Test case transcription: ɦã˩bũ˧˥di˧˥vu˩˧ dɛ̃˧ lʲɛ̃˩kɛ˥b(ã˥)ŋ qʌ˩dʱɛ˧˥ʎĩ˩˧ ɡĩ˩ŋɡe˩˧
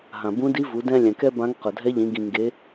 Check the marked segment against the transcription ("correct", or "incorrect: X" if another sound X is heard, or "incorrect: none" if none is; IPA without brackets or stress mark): incorrect: ã˧˥